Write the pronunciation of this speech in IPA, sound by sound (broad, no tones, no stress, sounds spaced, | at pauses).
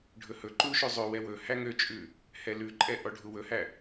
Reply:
ɖʱ ɵ h ɵ ǃ u ʃ ʉ zˤ ø w ɛ w ɵ h æ ŋ ø t͡ʃʼ ʉ | h ɛ l ʉ ǃʼ ɛ ʔ ɔ ɖʱ u w ɵ h æ